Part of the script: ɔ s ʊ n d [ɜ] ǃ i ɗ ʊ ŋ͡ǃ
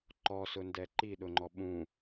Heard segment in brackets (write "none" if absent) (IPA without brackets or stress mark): ɛ